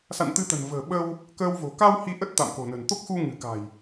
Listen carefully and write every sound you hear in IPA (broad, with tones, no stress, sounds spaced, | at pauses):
s a̰˧˨ n t̪ ɨ˧ t̪ ə̤˨˩ n v ə̤ː˨˩ ɓ ə˧ w | k əː˧ w v o̤˨˩ k a˧ w h i˧ ʔ ə˦˥ t̚ t̪ a̰˧˨ m k o̤˨˩ n ə̤˨˩ n t̪ o˦˥ k̚ x u˧ ŋ ɨ̤˨˩ k a̤˨˩ j